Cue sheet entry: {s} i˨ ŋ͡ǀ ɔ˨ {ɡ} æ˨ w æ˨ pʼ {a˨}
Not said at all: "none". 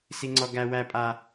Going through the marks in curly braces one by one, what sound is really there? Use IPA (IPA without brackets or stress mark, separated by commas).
s, ɡ, a˨